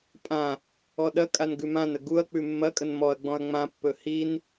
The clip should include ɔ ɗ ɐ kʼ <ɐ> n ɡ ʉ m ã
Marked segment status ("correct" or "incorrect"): incorrect